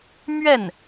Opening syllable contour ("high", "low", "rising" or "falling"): falling